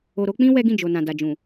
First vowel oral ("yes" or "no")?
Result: yes